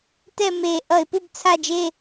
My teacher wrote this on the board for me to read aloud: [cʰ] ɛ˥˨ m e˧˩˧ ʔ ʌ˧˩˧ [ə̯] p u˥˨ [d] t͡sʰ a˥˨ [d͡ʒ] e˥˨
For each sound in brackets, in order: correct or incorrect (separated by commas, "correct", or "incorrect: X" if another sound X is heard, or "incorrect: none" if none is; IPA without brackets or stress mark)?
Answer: incorrect: t, incorrect: ɪ̯, incorrect: b, correct